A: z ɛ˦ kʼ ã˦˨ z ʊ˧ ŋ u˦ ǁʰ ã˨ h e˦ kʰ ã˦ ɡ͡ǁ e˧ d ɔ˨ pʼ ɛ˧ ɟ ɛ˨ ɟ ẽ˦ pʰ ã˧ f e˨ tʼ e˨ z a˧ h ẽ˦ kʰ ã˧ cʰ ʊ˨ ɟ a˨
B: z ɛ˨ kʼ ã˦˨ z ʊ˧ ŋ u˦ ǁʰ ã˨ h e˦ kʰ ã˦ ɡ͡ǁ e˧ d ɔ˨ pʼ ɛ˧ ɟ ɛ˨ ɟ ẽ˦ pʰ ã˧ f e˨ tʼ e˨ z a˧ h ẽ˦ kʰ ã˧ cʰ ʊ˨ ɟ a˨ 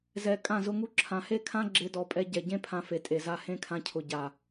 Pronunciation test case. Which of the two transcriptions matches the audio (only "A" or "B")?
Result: B